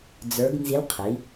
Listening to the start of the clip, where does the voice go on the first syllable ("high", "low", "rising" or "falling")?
rising